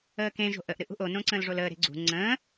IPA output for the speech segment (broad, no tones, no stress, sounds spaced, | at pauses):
əː k ẽ ʒ o̤ ʔ ə ʔ ɾ ɨ ʔ ṳ ʔ o n õ ǀ ə̃ː l ʐ o l əː ɾ e̤ ɡ͡ǀ ṳ ŋ͡ǀ ə̃ː